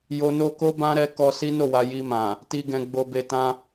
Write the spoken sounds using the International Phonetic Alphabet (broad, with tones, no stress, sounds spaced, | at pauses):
j o˧ n o˦ k o˦ b ã˦ ɾ ɛ˧ k ɔ˧ s i˦ n o˦˨ w a˧ j i˧ m ã˨ | t i˨ ɡ ɛ̃˨ ɡ͡b o˨ b e˨ t ã˧